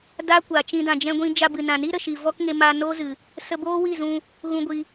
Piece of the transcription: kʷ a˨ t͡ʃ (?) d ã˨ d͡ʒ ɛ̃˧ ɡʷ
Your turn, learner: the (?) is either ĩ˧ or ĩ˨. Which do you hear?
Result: ĩ˧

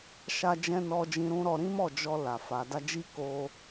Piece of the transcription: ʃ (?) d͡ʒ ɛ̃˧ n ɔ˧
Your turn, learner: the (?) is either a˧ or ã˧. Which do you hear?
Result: a˧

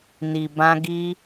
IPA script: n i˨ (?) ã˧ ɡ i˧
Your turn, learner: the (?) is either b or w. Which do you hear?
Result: b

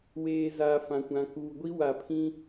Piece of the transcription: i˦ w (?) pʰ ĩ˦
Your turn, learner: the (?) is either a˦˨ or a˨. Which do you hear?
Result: a˨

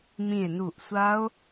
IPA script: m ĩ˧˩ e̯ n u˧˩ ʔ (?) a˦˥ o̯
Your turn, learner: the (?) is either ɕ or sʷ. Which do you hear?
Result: sʷ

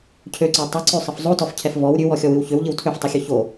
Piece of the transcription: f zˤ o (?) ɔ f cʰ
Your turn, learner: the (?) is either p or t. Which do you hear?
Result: t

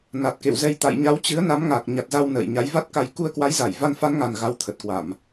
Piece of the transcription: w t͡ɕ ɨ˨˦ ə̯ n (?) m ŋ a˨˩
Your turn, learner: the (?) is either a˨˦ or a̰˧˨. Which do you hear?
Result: a˨˦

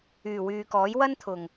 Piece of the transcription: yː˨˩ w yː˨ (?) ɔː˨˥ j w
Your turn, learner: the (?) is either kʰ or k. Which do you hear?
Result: k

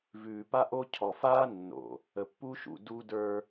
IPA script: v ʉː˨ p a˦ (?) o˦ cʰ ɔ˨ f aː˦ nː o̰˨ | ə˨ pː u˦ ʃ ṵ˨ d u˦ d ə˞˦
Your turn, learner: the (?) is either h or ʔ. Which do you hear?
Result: ʔ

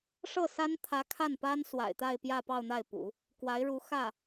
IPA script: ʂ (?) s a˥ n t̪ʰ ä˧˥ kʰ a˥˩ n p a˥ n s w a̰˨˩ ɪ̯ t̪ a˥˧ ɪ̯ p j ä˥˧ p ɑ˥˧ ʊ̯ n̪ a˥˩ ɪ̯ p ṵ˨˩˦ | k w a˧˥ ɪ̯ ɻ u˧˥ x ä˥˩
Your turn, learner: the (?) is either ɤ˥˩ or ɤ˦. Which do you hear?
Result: ɤ˥˩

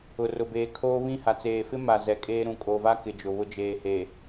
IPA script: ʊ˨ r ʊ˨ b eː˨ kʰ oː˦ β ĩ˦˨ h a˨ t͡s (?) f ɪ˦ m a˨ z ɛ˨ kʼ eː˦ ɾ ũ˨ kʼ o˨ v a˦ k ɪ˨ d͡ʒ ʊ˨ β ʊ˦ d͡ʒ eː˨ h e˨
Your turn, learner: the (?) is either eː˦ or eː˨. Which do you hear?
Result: eː˨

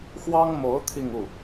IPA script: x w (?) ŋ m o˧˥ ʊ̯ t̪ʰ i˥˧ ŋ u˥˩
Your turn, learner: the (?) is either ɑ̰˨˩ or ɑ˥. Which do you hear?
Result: ɑ˥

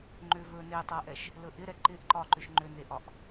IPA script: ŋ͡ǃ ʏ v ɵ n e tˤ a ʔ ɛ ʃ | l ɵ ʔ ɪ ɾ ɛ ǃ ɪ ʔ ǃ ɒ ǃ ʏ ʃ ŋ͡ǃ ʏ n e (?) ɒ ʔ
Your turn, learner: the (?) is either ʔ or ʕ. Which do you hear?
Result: ʔ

